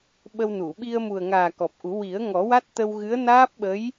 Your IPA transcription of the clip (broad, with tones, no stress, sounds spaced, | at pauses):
ɓ ə˧ w n u˨˩˨ ɓ i˧ ə̯ m u˨˩ ə̯ ŋ aː˨˩ k ɔ˨˩ p̚ ʔ u˨˩˦ w i˨˩˦ ə̯ ŋ ɔ˨˩˦ w a˦˥ t̚ t̪ ə˧ w ɣ ɨ˧˥ ə̯ n aː˦˥ p̚ ɓ ə˧˥ j